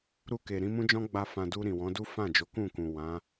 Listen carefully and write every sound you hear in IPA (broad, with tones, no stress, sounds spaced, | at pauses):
ɾ u˧ k e˨ ɾ ĩ˨˦ m ũ˦ d͡ʒ ɔ̃˦ ɡ͡b a˧ f ã˨ d u˧ ɾ ĩ˨ w ɔ̃˨˦ d u˦ f ã˦˨ d͡ʒ o˨˦ k ũ˦˨ k ũ˨ w ã˨˦